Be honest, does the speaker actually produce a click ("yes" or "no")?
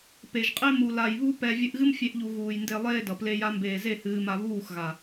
no